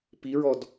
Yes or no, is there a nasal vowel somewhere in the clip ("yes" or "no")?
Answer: no